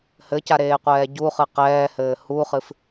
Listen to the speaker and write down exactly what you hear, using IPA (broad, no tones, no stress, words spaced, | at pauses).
hɘcaɾeːqʷɛː ɟuχɨ qɛːhɘː huχɨf